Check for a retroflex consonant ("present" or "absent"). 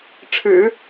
present